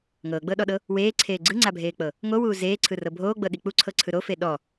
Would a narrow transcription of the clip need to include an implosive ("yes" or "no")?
yes